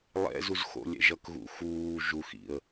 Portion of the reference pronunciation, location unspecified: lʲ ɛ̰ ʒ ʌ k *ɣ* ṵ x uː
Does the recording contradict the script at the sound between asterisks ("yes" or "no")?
no